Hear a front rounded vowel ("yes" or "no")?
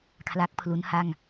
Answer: no